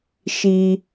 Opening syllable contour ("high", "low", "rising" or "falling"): low